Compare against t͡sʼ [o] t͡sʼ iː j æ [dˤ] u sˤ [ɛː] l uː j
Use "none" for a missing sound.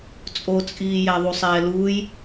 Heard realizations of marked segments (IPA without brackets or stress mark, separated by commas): o, ðˤ, ɛː